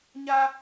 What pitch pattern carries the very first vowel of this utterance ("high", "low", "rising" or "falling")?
high